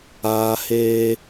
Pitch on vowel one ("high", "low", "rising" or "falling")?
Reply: high